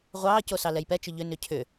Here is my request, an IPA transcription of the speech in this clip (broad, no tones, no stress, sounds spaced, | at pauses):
ʁʷ ɑː c o s ɑ l ɛ j p ɛ t͡ʃ ʏ ʎ ʏ n ʏ cʰ ʏ